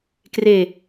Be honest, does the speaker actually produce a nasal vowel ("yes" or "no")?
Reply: no